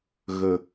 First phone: ɣ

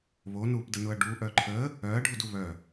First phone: β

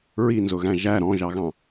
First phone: ɹ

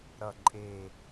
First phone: ɾ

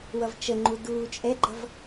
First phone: w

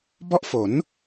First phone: b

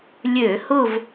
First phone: lʲ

